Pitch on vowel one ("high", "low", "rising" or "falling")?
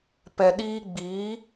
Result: low